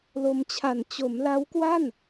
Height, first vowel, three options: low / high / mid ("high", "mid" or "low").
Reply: mid